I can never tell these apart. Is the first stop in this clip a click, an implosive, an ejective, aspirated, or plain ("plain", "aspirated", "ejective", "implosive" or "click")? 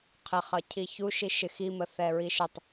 aspirated